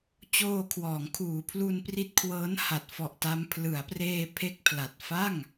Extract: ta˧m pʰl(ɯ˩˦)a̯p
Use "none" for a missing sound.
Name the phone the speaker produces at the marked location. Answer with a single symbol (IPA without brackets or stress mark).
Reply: ɯ˩˦